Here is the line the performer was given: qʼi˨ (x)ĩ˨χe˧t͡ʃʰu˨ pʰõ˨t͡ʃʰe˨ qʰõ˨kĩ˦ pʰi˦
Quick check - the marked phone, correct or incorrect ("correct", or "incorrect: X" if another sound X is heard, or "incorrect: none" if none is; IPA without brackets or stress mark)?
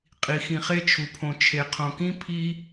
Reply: correct